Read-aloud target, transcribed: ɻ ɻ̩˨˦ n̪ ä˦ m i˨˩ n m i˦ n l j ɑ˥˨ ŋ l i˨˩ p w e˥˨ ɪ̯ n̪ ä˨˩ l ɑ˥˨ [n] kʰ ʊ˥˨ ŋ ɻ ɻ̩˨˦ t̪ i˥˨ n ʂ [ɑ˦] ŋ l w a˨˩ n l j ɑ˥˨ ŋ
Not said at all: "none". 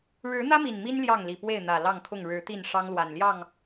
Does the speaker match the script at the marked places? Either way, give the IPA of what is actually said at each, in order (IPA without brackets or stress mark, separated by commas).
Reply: ŋ, ɑ˦